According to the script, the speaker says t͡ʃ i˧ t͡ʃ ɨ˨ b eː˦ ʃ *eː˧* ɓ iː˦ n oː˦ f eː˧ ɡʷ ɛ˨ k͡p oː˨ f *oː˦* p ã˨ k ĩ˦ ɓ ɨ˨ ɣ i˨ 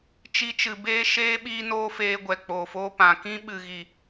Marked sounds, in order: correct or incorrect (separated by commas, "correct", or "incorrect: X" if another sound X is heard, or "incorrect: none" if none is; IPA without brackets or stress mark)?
incorrect: eː˦, incorrect: oː˧